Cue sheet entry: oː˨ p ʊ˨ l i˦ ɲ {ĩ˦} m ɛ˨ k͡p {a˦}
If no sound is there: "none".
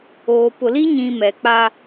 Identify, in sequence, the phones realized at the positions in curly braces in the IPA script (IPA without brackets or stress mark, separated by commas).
ĩ˨, a˦